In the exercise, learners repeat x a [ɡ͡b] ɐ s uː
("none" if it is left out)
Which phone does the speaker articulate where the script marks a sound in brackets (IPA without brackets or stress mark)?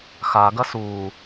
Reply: ɡ